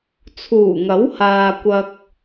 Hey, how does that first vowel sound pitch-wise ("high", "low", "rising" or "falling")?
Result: low